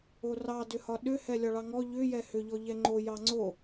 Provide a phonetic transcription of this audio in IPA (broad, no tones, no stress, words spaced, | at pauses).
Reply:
orɑ dʏhɒɗʏ hɛlʲɒɭɑŋɔ ʎʏ jɛhʏ ʎɔʎɛŋ͡ǃo jɑŋ͡ǀo